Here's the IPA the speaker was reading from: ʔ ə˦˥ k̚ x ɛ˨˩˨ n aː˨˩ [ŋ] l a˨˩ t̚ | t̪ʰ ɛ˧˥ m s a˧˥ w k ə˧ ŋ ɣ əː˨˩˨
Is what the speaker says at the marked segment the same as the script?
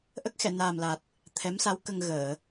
no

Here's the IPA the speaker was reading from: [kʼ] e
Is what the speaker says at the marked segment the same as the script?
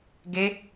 no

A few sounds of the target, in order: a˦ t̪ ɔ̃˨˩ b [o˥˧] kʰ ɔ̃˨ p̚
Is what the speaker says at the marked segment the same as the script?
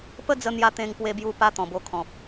no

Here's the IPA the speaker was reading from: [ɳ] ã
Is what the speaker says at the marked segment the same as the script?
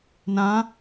no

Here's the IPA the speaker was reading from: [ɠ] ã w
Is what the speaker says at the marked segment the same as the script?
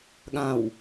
yes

